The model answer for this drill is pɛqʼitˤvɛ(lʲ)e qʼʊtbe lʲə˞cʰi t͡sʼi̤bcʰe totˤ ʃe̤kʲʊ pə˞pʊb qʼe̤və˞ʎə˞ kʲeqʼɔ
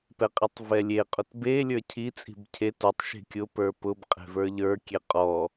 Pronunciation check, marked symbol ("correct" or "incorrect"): correct